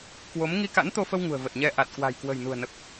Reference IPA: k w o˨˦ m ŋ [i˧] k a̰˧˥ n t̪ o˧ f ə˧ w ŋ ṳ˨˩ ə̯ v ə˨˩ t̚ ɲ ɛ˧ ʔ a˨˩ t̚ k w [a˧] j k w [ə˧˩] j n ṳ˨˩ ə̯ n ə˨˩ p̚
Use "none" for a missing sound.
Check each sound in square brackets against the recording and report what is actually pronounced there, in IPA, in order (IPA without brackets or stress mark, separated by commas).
i˧, a̤˨˩, ə̤˨˩